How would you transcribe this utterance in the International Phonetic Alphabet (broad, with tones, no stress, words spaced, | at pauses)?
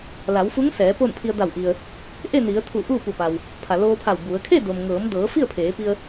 la˩˧wfu˧˥ŋsɛː˩˧ po˥˨npʰi˧ə̯ da˧˩wʔi˩ə̯ | ʔe˥˨ni˩˧ə̯ t̪ʰu˧˩ ʔuː˥˨pu˧˩ pa˩w | pʰa˩loː˧pʰa˧˩w bu˩˧ə̯ kʰe˥˨do˩mŋɤː˩˧mdɤː˩˧ fi˥˨ə̯pʰeː˩˧pi˧ə̯